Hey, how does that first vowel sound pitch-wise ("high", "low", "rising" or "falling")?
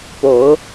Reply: rising